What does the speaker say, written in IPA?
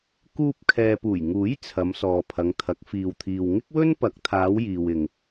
k uː˧ p̚ kʰ ɛː˨ p uː˨˩ j ŋ uː˨˥ j t͡sʰ ɐ˨˧ m s ɔː˨ pʰ ɐ˨˧ ŋ t̪ʰ ɐ˨˥ k̚ f iː˧ w t̪ʰ iː˧ w ŋ ɪ˥ k̚ w ɵ˥ n p ɐ˨˥ k̚ t̪ʰ aː˨˧ w j iː˨ w ɪ˨ ŋ

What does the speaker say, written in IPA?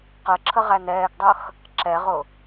q ə ǁʰ ə ʁ æ n ɛː ɡ dˤ ʌ x | ǁ ɛ ʁ ʊ

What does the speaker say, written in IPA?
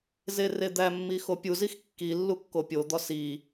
z e r e d̪ æ mː i x o pʲ u z i x kː i lː u kː o pʲ o d̪ ɒ s i

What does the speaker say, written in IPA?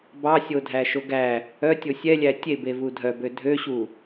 b ɑ sʲ o dʱ æ ʃ o ɡ æ | œ tʲ o sʲ ɛ lʲ æ tʲ e b e v u dʱ œ b ø dʱ ø ɕ u

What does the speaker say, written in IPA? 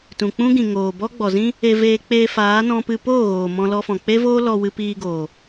t ũ˨ k͡p ũ˦ ɡ ĩ˨ ŋ oː˨ b ɔ˦ ɡ͡b ɔ˨ z ĩ˦ | e˧ v eː˧ k͡p eː˧ f aː˨˦ n ɔ̃˧ p ɨ˧ p oː˦˨ ɣ oː˨ m ɔ̃˧ l ɔ˧ f ɔ̃˨ k͡p e˦ v oː˦ l ɔ˧ w ɨ˧ p iː˧ ɡ oː˨

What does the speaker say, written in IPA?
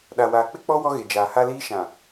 ɗ a˨ w aː˨ k͡p ɪ˦ k͡p ɔ˦ w ɔ˦ ɣ e˨ d͡ʒ aː˨ h a˦ l iː˦ ʃ ã˨

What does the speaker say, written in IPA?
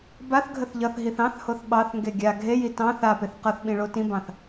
b a θ ɡʱ ə θ ʎ ʌ θ ɦ i θ ɑ̃ θ h o θ ɓ ɑ θ ŋ ɡ e ɡʲ a ɡʱ e j i t ɑ̃ θ a p e θ q ʌ θ ɓ ĩ ɭ o t ĩ b ɑ̃ θ

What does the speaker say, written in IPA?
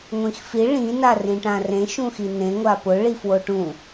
ŋʷ ĩ x f i ɭ ĩ n a r ĩ ʈ ã r ẽ ʃ ũ x i n ẽ ŋʷ a p ʊ ɭ i f w o ʈ ũ

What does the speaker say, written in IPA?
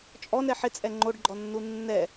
t͡ʃʼ ɔ n ɛ ħ ɪ t͡sʼ ɛ ŋ͡ǃ o ɖ ɡ͡ǃ ɔ nː u nː ɛ

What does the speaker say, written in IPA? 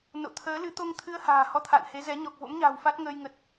n o̰˧˨ t̪ʰ əː˨˦ l ɨ˨˦ t̪ o˧ ŋ t̪ʰ ɨ˧ ə̯ h a̤ː˨˩ h ɔ˧ t̪ʰ a̰ː˧˨ n h e˨˦ z ɛ˨˦ ɲ ɔ˨˩ k̚ v o̰˧˥ m ɲ a̤ː˨˩ w f a˦˥ t̚ ŋ əː˧ j ŋ ə˨˩ t̚

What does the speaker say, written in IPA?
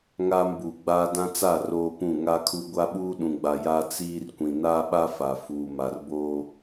ŋ aː˦ m b uː˨ ɡ͡b aː˦ d ã˦ t͡s a˦˨ r oː˦ p ũ˦˨ ŋ a˦ kʰ u˦ ɡʷ a˦ ɓ uː˦ ɗ ũ˨ ɡ͡b a˨ j a˦ t͡s iː˦ r kʷ ĩ˨ n aː˦ ɓ a˦ f a˨ f uː˨ m a˨ r b oː˦

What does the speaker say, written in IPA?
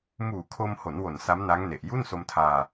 m uː˨˩ kʰ o˧ m h o˩˦ n w o˨˩ n s a˦˥ m n a˦˥ ŋ n e˨˩ ʔ j u˥˩ n s o˧ m tʰ aː˧

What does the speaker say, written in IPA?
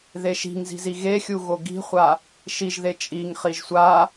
ð e ʃ i̤ ŋ z i̤ z i ɣ e xʲ u ɣ o ɡ i̤ χʷ a | ʃ i ʒ ð e t͡ʃʼ i ŋ χ i ʒ sʷ a

